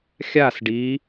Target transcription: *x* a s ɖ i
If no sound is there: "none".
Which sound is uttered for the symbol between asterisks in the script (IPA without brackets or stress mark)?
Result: xʲ